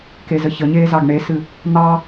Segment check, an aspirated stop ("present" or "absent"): absent